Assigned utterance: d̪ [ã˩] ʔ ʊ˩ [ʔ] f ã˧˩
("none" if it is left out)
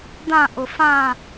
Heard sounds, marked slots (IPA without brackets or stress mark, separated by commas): ã˧˩, none